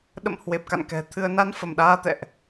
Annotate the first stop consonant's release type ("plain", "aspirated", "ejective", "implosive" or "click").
implosive